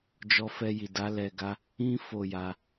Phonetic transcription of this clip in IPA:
d͡ʒ ɔ˧ f ɛ˧ j i˨ d a˨˦ l ɛ˧ ɡ a˦ | ĩ˦ f o˦˨ j a˧

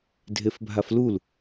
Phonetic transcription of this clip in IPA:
dʱ e f bʱ a f l u l

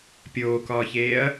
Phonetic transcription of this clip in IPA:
pʲ oː k ɒː ç eː ɐ̯

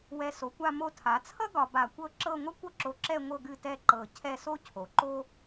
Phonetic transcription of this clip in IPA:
w ɛ˧˩ s o˩˧ kʷ a˥˧ m o˧ tʰ a˩˧ t͡sʰ ʌ˥ ɡ ɒ˧ b a˧˩ kʷ ɤ˥ ǁ ɤ˥˧ ŋʷ ʌ˥ kʷ ʌ˥ ǁ o˧ ǁ ɛ˥˧ ŋʷ ɤ˥˧ ɡ ɨ˥˧ t ɛ˥˧ ǃ ɤ˧˩ cʰ ɛ˥˧ s o˥ cʰ o˩˧ ǃ o˥

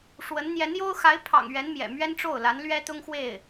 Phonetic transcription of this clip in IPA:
ʂ w ə˧˥ n n̪ j ɛ˧˥ n j o˥ ʊ̯ x a˧˥ ɪ̯ pʰ ɑ̰˨˩ ŋ ɥ ɛ˧˥ n m j ɛ̰˨˩ m ɥ ɛ˥ n ʈ͡ʂ o˥˩ ʊ̯ l a˧˥ n l ɥ ɛ˥ t̪ ʊ˥ ŋ x w e˥˩ ɪ̯

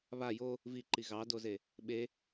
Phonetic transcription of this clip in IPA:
β a j o | v i ǃ i ɣ ɑ d o z e | ɓ e

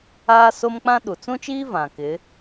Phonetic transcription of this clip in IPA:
aː˦ s o˦ m k͡p ã˦ ɗ u˨ t͡s ũ˦ t͡ʃ iː˦ v ã˨ k ɪ˨˦

